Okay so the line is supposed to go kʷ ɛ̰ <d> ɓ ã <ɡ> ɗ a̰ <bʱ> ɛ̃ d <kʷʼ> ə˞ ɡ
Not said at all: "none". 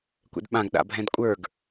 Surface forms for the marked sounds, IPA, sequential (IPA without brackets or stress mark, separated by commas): d, ɡ, bʱ, kʷʼ